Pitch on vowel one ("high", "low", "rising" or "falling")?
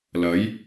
rising